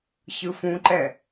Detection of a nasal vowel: present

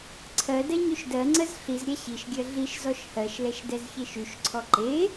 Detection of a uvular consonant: absent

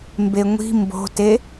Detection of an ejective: absent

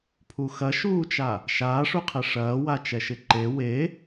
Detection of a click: present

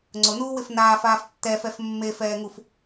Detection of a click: present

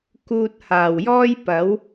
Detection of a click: absent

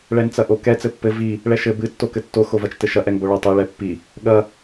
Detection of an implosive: present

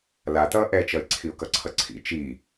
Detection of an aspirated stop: present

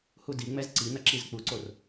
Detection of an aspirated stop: absent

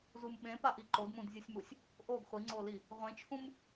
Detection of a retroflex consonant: absent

